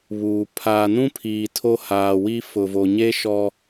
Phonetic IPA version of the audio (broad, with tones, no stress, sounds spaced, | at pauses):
β uː˨ pʰ aː˨ n ũ˦ pʰ iː˨ tʰ o˦ h aː˨ w i˦ f ʊ˨ v o˨ ɲ e˦ ʃ ɔ˦